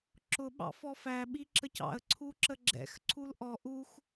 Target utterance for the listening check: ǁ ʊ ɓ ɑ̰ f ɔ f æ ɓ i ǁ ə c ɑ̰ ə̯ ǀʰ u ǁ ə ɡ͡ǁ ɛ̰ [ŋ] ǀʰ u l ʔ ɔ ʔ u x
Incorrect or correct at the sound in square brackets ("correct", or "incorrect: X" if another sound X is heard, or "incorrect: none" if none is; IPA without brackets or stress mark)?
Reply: incorrect: x